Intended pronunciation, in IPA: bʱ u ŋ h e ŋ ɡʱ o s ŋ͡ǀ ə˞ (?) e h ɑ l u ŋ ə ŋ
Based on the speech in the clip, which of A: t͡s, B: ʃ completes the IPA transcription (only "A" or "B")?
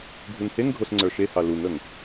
B